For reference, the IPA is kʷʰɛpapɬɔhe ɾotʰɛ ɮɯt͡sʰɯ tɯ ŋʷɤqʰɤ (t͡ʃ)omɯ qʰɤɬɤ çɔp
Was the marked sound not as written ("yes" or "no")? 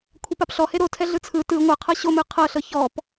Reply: yes